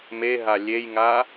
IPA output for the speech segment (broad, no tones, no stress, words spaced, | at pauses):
meɦa lʲejŋa